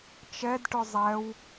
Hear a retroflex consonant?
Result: yes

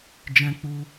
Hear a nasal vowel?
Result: yes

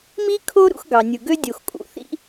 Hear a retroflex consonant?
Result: no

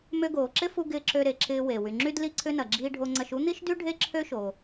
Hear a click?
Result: yes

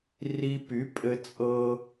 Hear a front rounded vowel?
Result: yes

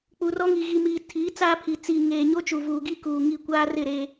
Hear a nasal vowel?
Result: no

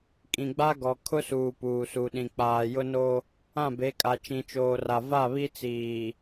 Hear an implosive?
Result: yes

